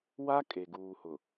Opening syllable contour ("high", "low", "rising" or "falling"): high